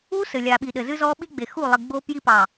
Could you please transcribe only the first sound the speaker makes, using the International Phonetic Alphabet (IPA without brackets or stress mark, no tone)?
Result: u